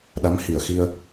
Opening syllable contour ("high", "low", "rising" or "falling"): rising